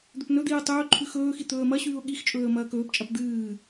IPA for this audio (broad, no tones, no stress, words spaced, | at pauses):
d̪ɵpnɵd̪iːə̯ tˤɵː ǃʰʉxɵːxi t̪ɵːə̯mɐɕʉːʊ̯ ɠix t͡ʃʼɵːə̯mɐːkɵːpt͡ʃʼɐp d̪ɨː